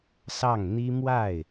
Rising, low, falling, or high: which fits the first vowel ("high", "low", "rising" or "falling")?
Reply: falling